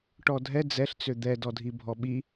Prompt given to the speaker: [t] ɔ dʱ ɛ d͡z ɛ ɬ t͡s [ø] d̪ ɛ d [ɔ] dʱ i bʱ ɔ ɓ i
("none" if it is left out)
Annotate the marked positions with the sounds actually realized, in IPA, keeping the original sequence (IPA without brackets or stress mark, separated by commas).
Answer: ʈ, ø, ɔ